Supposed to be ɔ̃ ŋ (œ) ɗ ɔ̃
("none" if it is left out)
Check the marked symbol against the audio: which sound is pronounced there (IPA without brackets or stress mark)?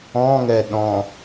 ɛ